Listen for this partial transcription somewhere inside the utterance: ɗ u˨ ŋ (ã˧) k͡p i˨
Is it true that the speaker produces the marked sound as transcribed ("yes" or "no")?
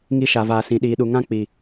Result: yes